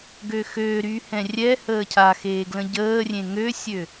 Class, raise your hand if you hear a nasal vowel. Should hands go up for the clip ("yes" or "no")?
yes